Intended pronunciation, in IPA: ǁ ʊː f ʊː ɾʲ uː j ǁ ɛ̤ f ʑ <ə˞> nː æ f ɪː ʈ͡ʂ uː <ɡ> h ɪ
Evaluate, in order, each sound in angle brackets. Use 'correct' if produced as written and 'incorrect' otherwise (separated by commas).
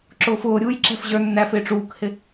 correct, incorrect